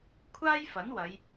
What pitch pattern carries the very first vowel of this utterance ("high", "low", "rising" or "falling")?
high